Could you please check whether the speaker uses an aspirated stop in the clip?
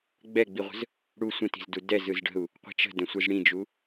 no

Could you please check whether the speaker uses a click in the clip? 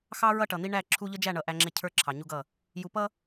yes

